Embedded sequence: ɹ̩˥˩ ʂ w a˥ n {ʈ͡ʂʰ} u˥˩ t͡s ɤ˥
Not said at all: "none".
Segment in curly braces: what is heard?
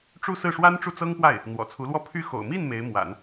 ʈ͡ʂ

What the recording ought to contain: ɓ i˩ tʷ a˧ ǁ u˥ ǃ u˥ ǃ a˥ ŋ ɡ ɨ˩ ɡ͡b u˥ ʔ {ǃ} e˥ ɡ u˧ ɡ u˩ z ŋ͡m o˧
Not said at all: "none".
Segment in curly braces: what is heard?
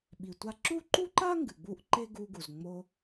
ǃ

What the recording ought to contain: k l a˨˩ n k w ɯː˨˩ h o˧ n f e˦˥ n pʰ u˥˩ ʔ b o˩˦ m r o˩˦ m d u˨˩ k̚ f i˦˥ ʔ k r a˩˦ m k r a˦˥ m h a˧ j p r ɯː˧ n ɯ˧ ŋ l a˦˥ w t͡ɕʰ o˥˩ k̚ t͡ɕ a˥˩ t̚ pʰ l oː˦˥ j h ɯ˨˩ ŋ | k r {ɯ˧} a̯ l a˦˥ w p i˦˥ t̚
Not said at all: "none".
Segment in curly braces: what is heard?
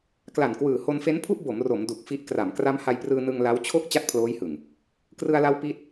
ɯ˧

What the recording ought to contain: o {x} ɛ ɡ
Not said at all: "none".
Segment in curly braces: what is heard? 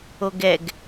ɡ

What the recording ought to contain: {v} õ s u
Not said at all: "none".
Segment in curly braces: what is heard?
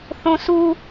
θ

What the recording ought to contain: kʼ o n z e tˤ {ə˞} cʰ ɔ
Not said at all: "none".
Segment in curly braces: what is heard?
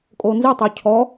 ə˞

